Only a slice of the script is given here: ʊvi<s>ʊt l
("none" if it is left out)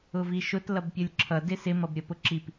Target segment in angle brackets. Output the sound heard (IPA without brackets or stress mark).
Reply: ʃ